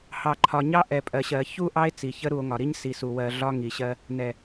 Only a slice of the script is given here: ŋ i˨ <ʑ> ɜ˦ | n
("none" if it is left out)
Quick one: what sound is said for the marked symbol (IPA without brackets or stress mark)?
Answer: ɕ